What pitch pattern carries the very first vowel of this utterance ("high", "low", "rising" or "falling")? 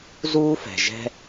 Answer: high